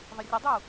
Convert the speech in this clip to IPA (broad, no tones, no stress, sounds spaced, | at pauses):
ðˤ ə rʲ ə dˤ uː